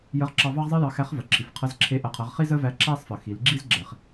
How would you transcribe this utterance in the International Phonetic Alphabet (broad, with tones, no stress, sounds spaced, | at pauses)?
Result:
j ə˧˥ ʁ ǁ ɑ˧ v ɑ˥ ʁ zˤ i˥ j ɑ˧ x æ˧˥ χ v ə˩ ǁʰ i˩ f qʰ ə˧˥ z ǁʰ e˧˥ ʔ ə˩˧ qʰ ə˩˧ ʁ χ i˥ z ə˥ v æ˧ ǁ æ˥ sˤ f ə˩ x i˩˧ l ɡ͡ǁ i˥ z ɡ͡ǁ ɛ˩ χ